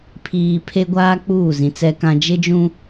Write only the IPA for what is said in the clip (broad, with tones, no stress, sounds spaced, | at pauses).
pʰ iː˨ pʰ e˦ ɡʷ aː˦ k͡p uː˦˨ z ĩ˨ t͡s ɛ˦ k ã˦ d͡ʒ ɪ˦ d͡ʒ ũ˦